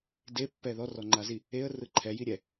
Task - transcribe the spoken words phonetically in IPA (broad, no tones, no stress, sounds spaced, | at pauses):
d e pː ɛ ð ɔ r ɔ ŋ͡ǃ a z i | e ə̯ r ɯ ǃʰ ɛ j i ɾʲ ɛ